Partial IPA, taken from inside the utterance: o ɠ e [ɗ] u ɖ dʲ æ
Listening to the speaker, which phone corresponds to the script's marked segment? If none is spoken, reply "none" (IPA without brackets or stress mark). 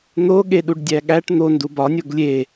ɗ